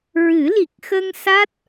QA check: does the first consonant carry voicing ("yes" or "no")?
yes